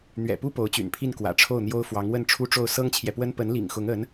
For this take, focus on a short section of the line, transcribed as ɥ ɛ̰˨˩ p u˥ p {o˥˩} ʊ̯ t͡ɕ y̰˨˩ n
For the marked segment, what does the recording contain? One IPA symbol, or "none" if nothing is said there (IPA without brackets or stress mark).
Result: o˧˥